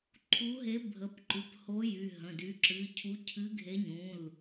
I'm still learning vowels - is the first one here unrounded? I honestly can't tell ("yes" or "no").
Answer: no